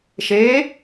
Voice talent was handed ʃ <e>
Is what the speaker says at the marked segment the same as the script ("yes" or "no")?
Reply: no